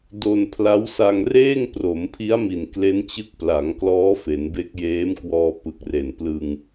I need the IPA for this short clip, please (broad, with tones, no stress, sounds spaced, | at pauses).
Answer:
d o˧ n pʰ l a˦˥ w s a˧ ŋ r eː˥˩ ŋ p r o˩˦ m pʰ i˦˥ a̯ m i˨˩ n k l e˦˥ n t͡ɕ ɯ˦˥ k̚ p l a˩˦ ŋ k l ɔː˦˥ f e˩˦ n b e˦˥ k̚ j eː˦˥ m k w ɔː˧ p ɯ˨˩ k̚ r e˨˩ n p l ɯ˧ ŋ